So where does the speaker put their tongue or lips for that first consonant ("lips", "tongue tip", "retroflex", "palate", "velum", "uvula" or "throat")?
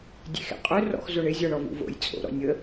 tongue tip